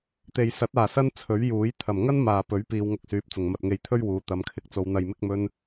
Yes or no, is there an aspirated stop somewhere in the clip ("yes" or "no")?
yes